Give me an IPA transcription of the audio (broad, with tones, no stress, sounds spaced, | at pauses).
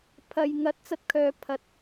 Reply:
pʰ ɐ˨ j ŋ ɐ˨˥ t̚ t͡s ɐ˧ t̚ kʰ œː˨ pʰ ɐ˨˥ t̚